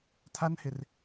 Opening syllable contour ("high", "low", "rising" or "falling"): high